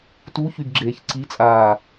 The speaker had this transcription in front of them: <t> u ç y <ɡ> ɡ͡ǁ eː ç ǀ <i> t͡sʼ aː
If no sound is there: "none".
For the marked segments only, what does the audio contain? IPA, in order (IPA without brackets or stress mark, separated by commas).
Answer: t, ɡ, i